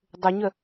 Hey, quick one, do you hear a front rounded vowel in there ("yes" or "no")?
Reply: yes